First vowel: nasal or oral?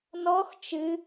oral